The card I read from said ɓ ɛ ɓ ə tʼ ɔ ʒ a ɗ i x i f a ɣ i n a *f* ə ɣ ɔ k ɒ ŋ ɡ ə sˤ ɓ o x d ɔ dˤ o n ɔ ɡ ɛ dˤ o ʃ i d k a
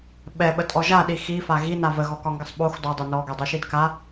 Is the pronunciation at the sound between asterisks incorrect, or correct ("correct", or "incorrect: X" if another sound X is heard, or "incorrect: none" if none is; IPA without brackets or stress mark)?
incorrect: v